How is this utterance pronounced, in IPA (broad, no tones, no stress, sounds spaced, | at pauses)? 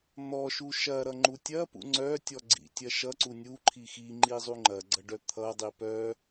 n̪ ɔ ʃ u ʃ ɐ ɾ ʌ ŋ͡ǃ u tʲ ɐ p ṵ ŋ͡ǀ œ tʲ ɔ ɡ͡ǀ ḭ tʲ ɐ ʃ ʌ ǀ u nʲ u ǃʰ i x i ŋ͡ǃ i zˤ u ŋ͡ǃ ɐ ɡ͡ǀ ʌ ɖ œ t̪ʰ ʌ dˤ i p œ